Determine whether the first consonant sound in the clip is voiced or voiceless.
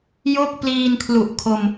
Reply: voiced